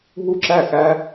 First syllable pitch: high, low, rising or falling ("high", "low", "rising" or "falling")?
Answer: falling